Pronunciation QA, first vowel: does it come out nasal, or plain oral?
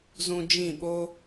nasal